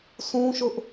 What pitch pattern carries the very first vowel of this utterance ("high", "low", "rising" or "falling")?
high